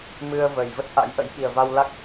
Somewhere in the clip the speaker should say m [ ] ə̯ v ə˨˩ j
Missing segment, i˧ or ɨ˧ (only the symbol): ɨ˧